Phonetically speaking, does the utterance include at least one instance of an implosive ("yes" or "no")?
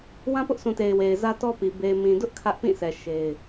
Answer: no